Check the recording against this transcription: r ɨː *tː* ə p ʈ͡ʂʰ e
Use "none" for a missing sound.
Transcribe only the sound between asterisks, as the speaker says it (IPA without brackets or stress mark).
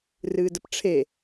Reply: d